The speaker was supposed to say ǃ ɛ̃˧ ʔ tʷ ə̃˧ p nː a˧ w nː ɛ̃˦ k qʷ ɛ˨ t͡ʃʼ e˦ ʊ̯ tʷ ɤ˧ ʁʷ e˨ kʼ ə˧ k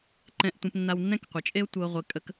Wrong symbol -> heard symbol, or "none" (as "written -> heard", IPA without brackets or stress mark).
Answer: none